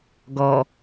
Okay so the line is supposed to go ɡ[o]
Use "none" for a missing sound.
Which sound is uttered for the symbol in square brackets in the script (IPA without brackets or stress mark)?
ɔ